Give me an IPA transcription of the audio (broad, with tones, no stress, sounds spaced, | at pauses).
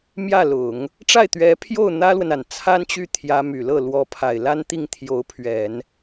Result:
m j ä˥˩ l ʊ˨˩˦ ŋ | ʈ͡ʂ a˥˩ ɪ̯ t̪ ɥ ɛ˧˥ pʰ j o˥˩ ʊ̯ n̪ ä˥ l w ə˨ n a˨˩ n t͡sʰ a˥ n t͡ɕ y˥˩ t̪ʰ j ä˧˥ m y˨˩ l ɤ˥˩ l w ɔ˧˥ pʰ a˨˩ ɪ̯ l a˥ n t̪ i˥˩ ŋ t̪ʰ j o˧˥ ʊ̯ pʰ ɥ ɛ˨˩˦ n